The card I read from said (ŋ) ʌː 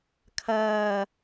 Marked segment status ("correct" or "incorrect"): incorrect